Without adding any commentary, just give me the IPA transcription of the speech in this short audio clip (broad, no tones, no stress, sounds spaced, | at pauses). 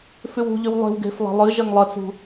f ʉ w ṳ ʎ ʉ w lˠ e̤ w ɡ e̤ f lˠ a̤ lˠ ɨ ʒ ɐ ŋ lˠ ɐ t͡s ṳ